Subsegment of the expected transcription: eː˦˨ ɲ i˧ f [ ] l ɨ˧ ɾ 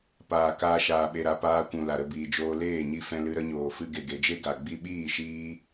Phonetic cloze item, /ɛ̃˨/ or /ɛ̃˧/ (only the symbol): ɛ̃˧